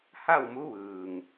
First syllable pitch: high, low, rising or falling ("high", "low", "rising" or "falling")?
falling